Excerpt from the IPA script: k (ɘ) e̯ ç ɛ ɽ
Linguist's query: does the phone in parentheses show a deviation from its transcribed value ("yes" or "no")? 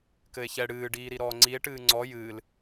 no